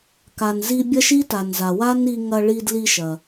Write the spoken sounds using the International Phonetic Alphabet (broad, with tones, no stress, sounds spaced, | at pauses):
k a˩ n z i˧ bʲ ɐ˥ ʃ i˥ t a˩ n z a˩ w a˥ n i˧ ŋ ɐ˧ ɭ i˧ d l i˧ ʃ ɐ˩